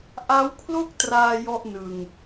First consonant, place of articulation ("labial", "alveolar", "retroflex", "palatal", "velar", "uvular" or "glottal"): glottal